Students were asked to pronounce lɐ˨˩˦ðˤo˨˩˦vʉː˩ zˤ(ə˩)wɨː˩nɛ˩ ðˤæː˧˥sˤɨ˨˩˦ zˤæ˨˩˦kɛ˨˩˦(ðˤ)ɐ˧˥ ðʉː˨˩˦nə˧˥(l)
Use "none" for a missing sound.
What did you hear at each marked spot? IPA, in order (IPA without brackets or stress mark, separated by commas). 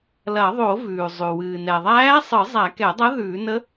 ʉ˩, dˤ, none